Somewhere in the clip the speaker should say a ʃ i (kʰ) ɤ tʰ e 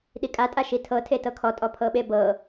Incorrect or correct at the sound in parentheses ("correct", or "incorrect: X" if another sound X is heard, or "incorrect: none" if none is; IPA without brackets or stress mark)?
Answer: incorrect: tʰ